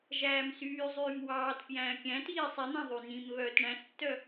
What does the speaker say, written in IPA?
ʒæːmsyːzˤyːm wɑːt pjæ̃ːkʲæ̃tiː sˤin̪æ̃ ðˤynĩmβœːt ɳæ̃stːœ

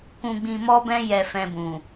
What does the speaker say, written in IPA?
kũ˧ɡ͡bĩ˧mɔ˦bɛ̃˦ jɛ˧fɛ̃˧bũ˨

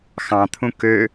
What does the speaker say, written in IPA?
xɑ̃t̪ʰũ kø

